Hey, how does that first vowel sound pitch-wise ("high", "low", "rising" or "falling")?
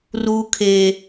low